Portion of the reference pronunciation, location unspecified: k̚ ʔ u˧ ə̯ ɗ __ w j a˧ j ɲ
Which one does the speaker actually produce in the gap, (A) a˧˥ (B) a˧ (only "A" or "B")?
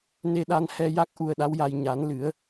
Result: A